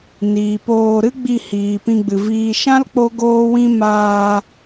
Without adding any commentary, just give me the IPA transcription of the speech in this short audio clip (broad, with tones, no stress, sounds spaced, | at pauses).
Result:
n iː˨ p oː˧ ɾ ɨ˦ ɡ͡b i˧ h iː˨ p ĩ˧ ɡ͡b ɨ˨ v iː˨ ʃ ã˦ l k͡p o˦ ɡ oː˦ w ĩ˦ m aː˧